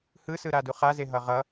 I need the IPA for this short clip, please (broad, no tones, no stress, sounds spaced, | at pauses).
h ɯ s ɯ ɾ a d u χ a z e ɦ ʌ ʁ ʌ